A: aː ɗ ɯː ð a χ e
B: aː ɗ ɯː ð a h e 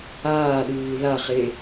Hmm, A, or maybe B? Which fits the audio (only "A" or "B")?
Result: A